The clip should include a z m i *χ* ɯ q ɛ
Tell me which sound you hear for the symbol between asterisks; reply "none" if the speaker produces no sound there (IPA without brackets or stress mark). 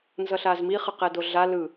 χ